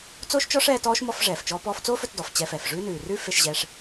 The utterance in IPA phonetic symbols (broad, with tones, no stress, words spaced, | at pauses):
t͡soː˥ʃt͡ʃɔ˥ʂ ɛː˧tɔː˥ʃ mɔ˧fʐɛː˩ft͡ʃɔː˧ pɔː˧ft͡soː˥fɵ˧tdɔ˩f t͡ɕɛ˧fɛ˩fʐʉː˥ nʉː˩rʉ˥ fe˧ʃʑɛ˧ʂ